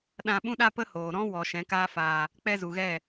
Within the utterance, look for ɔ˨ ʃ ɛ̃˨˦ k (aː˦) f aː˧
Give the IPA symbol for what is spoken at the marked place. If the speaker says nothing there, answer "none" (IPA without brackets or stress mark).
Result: aː˦